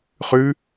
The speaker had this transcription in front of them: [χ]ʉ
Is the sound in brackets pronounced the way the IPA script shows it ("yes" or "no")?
yes